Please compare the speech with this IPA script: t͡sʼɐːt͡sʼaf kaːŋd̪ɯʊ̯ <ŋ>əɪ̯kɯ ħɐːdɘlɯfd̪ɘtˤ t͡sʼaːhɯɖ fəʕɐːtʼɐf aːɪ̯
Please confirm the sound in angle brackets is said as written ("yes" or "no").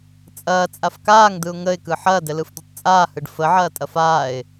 yes